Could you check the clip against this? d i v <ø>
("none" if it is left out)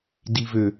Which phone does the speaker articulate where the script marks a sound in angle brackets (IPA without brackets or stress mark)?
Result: ø